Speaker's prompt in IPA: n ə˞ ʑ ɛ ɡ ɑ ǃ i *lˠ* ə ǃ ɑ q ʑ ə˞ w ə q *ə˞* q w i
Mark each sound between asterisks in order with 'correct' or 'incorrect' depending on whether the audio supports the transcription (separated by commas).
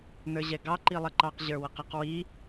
correct, incorrect